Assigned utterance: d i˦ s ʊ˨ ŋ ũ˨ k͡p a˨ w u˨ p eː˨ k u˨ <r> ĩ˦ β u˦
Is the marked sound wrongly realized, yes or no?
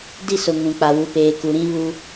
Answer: yes